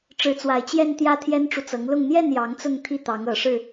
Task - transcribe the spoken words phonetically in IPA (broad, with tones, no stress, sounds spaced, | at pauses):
ʈ͡ʂ ɻ̩˧˥ t͡s w a˨˩ ɪ̯ t͡ɕ j ɛ˥˧ n t̪ j ä˥˩ t̪ʰ j ɛ˥ n ʈ͡ʂ u˨ t͡s ɤ˧˥ ŋ l ʊ˥˧ ŋ n̪ j ɛ˥˩ n j ɑ˧˥ ŋ t͡s ʊ˥˧ ŋ t̪ʰ i˥˩ t̪ ɑ˧˥ ŋ ɤ˨˩ ʂ ɻ̩˥˩